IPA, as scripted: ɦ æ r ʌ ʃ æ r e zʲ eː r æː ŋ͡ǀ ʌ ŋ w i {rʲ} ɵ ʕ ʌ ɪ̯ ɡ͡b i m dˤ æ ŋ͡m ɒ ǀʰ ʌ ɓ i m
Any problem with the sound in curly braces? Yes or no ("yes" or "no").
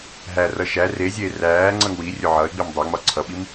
no